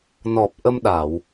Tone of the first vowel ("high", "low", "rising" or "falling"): low